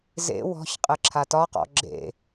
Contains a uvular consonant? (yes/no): yes